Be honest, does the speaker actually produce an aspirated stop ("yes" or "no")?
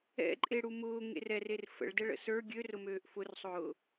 no